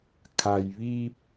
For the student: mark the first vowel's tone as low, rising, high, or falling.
low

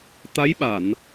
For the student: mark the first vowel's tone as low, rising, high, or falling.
rising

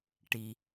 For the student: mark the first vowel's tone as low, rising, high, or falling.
low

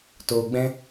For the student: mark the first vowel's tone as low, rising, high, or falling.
low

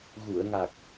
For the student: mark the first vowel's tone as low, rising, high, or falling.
low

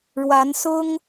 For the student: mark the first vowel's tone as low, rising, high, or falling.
rising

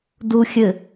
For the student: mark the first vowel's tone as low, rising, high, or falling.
low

